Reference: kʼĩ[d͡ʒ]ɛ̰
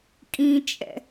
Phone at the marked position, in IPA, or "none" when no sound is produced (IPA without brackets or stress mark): t͡ʃʼ